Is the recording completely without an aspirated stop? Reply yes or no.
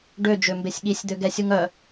yes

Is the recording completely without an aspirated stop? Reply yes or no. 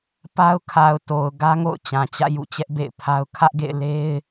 no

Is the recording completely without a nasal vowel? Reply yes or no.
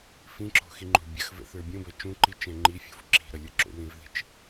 no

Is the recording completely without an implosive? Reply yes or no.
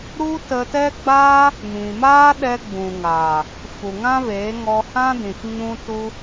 no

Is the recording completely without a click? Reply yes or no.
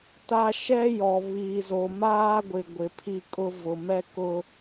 yes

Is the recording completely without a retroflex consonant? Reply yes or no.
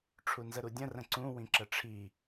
no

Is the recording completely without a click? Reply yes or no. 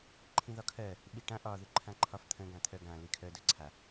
no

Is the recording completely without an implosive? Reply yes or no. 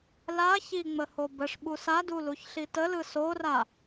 no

